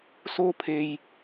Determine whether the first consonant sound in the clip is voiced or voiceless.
voiceless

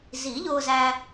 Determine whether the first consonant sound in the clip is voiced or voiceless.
voiced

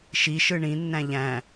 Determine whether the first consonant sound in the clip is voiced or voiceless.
voiceless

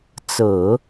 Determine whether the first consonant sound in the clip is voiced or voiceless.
voiceless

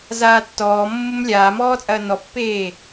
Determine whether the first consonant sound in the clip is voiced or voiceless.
voiced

